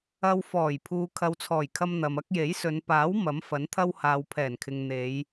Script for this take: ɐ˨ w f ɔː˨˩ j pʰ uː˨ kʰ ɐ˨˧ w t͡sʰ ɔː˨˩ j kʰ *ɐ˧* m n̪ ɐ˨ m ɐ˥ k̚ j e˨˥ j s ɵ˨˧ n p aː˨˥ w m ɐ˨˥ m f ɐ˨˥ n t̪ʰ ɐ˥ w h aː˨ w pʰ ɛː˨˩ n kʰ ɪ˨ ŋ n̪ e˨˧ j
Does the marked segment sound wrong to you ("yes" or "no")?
no